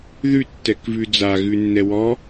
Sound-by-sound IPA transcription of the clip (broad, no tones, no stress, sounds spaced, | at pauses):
ð ʉ tː ɛ k v ʉ d͡z a ɣ ʉ nː ɛ w ɔ